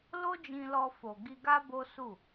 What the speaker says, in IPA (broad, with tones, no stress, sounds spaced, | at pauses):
l o˦ d͡ʒ ĩ˧ l ɔ˧ f o˨ ɡ i˧ ɡ a˦ b o˦ s u˦˨